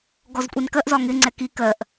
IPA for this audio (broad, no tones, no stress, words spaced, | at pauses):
ɡɔzkʷʼinkɜʔ zɒŋɪ ŋ͡ǀɛki kɜʔ